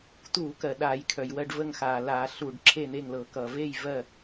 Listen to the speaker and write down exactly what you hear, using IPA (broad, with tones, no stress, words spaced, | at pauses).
tuː˧˩˧kɜ˩ ɗaː˧˩˧jkʰœ˩jwɜ˥˨ɖvə˥˨ŋ xaː˩laː˧˩˧ ɬuː˧˩˧ɖǁʰe˥˨n̪e˥˨ŋlɤ˧˩˧ kʌ˩ve˥˨j vɜ˥˨